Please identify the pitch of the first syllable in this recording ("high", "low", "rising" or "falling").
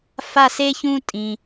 falling